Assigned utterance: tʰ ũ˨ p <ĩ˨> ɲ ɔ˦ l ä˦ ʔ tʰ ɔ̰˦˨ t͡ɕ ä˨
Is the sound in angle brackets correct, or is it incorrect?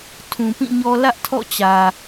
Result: incorrect